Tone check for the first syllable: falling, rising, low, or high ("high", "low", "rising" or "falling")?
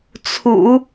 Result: low